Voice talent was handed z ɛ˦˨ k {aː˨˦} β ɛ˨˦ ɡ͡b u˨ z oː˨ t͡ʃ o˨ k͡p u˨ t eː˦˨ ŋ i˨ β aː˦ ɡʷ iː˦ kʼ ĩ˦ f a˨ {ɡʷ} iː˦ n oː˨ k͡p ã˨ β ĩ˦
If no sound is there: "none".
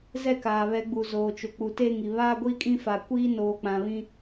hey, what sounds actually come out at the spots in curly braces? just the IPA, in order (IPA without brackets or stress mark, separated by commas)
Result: aː˨, kʷ